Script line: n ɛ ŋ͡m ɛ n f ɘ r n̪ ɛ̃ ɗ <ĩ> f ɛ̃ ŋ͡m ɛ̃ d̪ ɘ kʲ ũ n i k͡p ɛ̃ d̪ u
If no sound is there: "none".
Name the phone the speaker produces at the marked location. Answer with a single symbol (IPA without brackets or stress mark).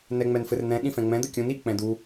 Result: ĩ